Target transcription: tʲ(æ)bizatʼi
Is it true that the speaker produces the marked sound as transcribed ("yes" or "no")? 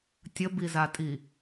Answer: no